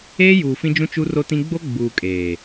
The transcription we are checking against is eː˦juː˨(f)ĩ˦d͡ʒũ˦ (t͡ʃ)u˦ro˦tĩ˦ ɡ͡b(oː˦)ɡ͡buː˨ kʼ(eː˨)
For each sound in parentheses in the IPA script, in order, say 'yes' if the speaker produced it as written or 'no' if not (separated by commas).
yes, yes, no, yes